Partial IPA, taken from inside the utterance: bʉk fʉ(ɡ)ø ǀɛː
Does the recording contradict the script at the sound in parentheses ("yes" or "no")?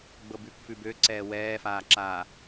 yes